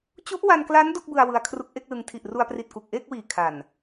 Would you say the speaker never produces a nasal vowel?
yes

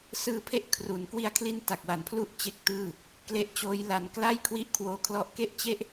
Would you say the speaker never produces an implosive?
yes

